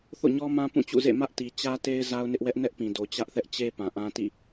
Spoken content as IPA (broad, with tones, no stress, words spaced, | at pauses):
θo̰˦˨ɲɔ˦mã˦ pũ˦˨t͡ɕṵ˦˨zḛ˦˨ mä˦ʔti˨ t͡ɕä˦te˦ɪ̯ za˦ʊ̯nɪ˦ʔwɛ˦ʔ nɛ˦ʔpĩ˨do˨ t͡ɕä˦ʔθɛ˦ʔt͡ɕe˦ pã˨ʔã˦tḭ˦˨